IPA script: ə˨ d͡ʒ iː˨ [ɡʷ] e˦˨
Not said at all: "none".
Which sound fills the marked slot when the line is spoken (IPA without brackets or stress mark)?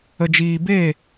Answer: b